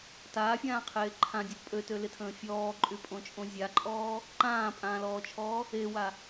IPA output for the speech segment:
t aː fʲ ãː qʰ eː ǃʰ ã dʲ ɔ pʼ ø t ø l ɪ tʰ ə̃ː fʲ ɔː ǃʼ y pʼ õ t͡ʃʼ õ zʲ a ǃʼ ɔː | ǃ ãː pʼ ãː l ɔː t͡ʃʰ ɔː | e w a

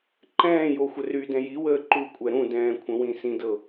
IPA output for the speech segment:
ǃ ɛ̃ː j o xʷ ə r y d ɛ̃ j i w əː ǃ u kʷʼ ɛ ɾ ũ d ɛ̃ː kʷʰ ə̃ w ĩ s ĩ d ɤ

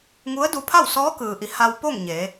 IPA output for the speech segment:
ŋ u˧˥ ə̯ d u˧ pʰ a˥˨ w s ɔː˧˥ k ɯː˩ ʔ i˩˧ h a˧ w p o˥˨ ŋ ɲ e˩˧

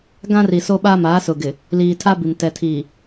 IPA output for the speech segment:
ɡ ã˦ r i˨ s o˦ ɓ aː˦ m aː˨˦ s ʊ˨ ɡ ɪ˨ | l iː˨ tʰ aː˦ b i˨ m t ɛ˨ tʰ iː˨

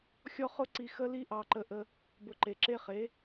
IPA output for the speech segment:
xʲ ɔ˦ χ ʊ˦ ǀ i˧ x ə˦ l i˦ ʔ ɑ˧ ǃ ə˧ ʔ ə˧ | b ʊ˨ ǃ e˨ ǁ e˦ χ e˨˦

